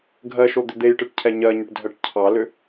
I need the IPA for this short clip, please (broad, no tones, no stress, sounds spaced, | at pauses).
ɡʱ ɜ ʃ o d̪ ʏ d̪ e j ʈ ɨ ʈ cʰ ɛ ɲ ɜ ɲ ʏ ʈ dʱ ɜ ʈ cʰ ɑ l ʏ